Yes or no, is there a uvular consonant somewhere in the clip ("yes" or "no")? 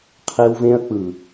yes